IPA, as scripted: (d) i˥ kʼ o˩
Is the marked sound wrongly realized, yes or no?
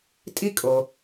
yes